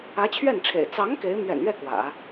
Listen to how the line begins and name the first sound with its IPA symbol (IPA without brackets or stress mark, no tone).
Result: ä